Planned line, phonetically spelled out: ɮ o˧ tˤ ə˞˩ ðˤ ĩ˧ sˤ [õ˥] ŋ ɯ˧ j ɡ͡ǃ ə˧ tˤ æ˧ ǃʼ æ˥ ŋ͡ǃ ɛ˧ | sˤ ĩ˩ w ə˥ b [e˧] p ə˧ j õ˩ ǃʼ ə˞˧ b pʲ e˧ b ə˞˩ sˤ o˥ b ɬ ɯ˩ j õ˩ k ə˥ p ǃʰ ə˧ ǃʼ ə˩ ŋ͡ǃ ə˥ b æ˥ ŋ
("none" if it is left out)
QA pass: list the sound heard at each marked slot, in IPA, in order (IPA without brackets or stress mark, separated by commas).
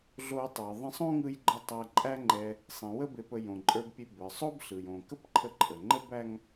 õ˥, e˧